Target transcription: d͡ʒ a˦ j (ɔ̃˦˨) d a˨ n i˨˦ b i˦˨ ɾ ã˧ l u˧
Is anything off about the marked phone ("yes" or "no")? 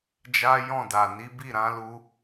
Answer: no